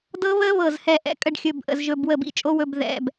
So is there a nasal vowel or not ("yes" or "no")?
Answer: no